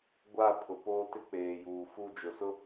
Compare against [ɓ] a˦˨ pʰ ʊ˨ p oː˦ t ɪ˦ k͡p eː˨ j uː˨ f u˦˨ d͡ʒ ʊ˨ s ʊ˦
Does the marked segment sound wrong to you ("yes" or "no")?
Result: yes